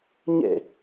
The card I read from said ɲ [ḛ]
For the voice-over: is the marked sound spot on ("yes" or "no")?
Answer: yes